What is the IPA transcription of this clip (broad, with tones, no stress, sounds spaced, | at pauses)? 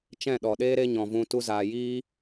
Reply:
t͡ʃ ɛ̃˦˨ ɗ ɔ˨ ɗ eː˦ ɾ e˦ ɲ ɔ̃˨ v ũ˧ t u˧ z aː˨ j iː˦